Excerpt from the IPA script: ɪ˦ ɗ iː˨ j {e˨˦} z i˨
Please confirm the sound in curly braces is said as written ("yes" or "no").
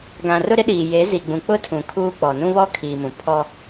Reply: yes